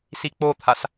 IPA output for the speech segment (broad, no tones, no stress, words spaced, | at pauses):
sik͡pot̪ʰas